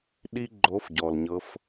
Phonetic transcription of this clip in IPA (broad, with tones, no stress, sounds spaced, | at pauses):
ɗ i˥ ɡ͡ǃ o˧˥ f ɟ ɔ˩ l ɲ ɤ˧˥ f